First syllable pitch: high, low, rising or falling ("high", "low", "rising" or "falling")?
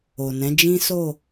low